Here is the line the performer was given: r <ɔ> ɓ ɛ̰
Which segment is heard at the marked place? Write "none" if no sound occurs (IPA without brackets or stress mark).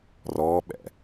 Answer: ɔː